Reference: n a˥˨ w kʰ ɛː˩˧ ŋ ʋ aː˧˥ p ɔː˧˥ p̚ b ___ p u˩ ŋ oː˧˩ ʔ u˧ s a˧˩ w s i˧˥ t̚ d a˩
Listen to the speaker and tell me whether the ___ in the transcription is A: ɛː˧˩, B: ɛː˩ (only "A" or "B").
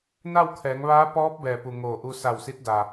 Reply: B